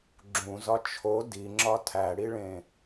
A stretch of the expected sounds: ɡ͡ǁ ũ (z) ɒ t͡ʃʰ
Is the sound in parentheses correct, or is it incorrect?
correct